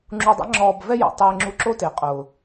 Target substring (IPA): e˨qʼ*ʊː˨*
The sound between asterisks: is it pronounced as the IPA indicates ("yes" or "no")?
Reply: yes